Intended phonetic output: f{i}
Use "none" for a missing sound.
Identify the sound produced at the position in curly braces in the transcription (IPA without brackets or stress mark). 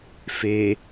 e